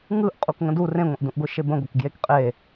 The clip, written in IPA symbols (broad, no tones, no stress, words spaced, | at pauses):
ŋɯʔ qʼukŋə̃du rẽŋʷə̃ʔdũʔɡʷɯ ʃebə̃ɡʷək ɡjekqʼe